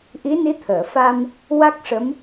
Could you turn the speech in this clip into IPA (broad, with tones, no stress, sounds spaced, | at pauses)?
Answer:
ʔ i˧˥ n i˧˥ t̪ʰ əː˨˩˨ f a˧ m | w a˦˥ k̚ ʂ ə˧˥ m